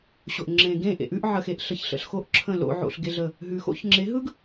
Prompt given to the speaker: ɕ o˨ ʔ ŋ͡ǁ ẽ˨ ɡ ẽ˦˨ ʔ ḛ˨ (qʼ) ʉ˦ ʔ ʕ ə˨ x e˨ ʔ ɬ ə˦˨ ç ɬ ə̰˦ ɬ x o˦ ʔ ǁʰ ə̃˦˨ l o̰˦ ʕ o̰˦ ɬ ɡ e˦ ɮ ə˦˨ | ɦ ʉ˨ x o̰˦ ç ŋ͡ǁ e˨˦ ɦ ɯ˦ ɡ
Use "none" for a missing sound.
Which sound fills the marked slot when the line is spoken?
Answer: ʔ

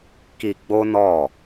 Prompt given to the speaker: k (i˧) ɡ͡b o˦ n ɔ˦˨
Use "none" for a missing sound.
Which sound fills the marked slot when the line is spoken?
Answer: i˧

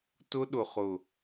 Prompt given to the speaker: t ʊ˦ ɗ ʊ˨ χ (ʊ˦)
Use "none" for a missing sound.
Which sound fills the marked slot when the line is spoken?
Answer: ʊ˨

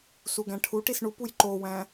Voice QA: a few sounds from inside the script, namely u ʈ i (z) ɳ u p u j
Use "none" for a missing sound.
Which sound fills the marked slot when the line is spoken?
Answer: s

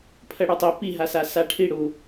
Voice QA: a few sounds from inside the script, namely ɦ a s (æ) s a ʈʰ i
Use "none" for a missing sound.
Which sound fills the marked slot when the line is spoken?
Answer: a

